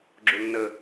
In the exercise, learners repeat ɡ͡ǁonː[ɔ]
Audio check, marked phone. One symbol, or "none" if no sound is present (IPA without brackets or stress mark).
ə